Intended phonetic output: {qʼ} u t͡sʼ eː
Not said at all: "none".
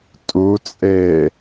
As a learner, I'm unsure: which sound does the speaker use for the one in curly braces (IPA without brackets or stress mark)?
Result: tʼ